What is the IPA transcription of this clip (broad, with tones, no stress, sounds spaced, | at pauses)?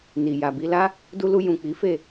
n i˨ j a˨ b i˧ l a˦ | d u˧ l u˧ j ũ˨ k͡p i˨˦ f e˦˨